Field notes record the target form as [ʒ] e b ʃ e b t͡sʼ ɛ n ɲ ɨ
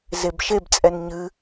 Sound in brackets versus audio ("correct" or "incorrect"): incorrect